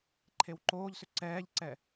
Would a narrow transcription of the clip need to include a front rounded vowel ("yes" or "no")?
yes